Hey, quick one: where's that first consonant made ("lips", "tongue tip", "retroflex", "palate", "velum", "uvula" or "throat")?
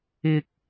velum